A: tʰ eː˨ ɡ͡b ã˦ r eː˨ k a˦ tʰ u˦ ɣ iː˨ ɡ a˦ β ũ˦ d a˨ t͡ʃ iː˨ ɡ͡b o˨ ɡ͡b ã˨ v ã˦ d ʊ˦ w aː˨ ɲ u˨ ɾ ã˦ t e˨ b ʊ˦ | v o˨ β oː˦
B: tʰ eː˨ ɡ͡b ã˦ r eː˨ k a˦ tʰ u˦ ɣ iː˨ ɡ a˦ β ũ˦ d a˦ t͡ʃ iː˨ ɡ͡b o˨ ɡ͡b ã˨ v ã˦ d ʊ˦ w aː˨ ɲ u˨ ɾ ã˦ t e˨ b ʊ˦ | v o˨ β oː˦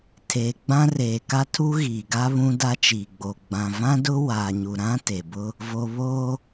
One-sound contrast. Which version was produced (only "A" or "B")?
B